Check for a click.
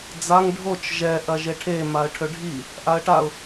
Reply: absent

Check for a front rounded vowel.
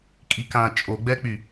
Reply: present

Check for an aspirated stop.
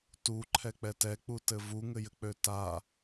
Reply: present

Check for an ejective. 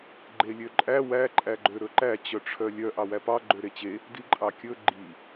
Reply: present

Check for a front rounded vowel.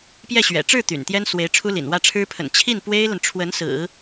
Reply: present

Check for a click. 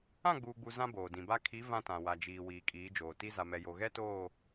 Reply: absent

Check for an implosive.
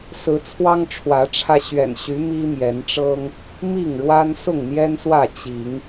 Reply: absent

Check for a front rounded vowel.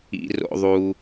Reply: absent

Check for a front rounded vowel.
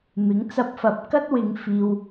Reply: absent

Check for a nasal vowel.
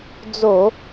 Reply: absent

